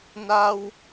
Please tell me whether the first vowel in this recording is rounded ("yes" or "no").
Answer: no